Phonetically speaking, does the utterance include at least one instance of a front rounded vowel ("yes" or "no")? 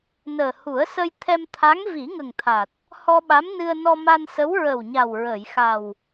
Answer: no